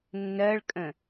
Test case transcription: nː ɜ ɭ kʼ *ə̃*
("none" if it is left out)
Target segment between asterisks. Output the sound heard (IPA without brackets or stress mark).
ə̃